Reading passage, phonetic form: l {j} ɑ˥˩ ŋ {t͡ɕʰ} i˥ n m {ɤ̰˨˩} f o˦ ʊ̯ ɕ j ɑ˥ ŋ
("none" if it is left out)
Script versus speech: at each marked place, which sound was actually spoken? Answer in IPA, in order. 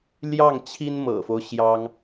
j, t͡ɕʰ, ɤ̰˨˩

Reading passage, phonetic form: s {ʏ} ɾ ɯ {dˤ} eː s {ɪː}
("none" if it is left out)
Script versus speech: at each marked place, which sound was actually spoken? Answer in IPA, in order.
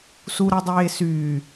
u, dˤ, yː

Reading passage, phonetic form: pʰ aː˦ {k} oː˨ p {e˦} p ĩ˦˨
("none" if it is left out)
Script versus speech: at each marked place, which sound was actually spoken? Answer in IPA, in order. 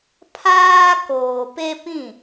k, e˦

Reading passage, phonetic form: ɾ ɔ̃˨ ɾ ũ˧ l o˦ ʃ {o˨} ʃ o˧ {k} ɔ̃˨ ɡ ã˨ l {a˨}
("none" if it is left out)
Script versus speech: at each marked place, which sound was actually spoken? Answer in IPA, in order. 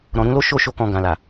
o˦˨, k, a˨

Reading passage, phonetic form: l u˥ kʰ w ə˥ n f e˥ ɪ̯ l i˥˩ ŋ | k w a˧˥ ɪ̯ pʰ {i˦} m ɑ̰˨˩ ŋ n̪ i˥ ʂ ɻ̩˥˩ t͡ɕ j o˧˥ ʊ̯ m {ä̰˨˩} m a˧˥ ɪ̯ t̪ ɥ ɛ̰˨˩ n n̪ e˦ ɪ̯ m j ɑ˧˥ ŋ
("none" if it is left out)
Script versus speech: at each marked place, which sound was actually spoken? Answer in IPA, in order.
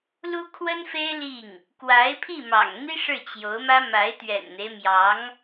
i˥˩, ä˥

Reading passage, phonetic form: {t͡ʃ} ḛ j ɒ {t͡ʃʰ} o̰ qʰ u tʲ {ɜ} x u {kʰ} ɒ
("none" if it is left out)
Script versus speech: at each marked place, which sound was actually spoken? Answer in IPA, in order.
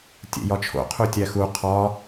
tʲ, t͡ʃʰ, æ, qʰ

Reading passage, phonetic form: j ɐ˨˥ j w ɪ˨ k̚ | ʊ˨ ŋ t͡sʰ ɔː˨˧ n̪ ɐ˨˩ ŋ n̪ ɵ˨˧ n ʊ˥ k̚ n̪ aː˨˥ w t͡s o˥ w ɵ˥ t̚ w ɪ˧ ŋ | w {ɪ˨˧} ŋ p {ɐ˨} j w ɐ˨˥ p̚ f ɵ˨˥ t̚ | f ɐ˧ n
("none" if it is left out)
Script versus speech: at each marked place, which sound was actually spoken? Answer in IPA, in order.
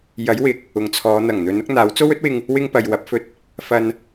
ɪ˥, ɐ˨

